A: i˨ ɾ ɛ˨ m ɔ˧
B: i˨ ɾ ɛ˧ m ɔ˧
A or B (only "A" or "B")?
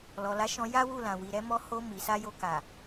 B